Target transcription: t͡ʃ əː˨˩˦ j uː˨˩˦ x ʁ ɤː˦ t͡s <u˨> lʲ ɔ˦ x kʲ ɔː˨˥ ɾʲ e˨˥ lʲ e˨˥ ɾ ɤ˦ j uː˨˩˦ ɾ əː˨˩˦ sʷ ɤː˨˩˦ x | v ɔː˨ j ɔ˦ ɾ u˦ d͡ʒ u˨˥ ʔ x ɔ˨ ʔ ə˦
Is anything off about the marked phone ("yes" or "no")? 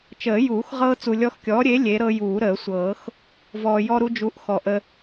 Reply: no